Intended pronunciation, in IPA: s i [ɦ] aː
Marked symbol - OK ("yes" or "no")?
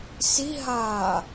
yes